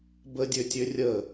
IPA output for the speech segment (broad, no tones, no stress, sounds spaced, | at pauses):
b ə dʲ ø tʲ ø rʲ ə